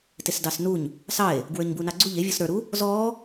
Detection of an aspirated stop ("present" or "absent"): absent